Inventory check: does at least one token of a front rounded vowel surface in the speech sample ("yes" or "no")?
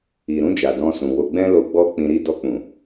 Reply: no